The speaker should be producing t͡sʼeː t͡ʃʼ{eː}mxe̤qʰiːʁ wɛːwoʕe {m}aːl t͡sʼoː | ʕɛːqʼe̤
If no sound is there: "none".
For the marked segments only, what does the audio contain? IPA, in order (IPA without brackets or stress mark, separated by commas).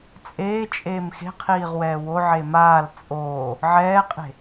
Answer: eː, m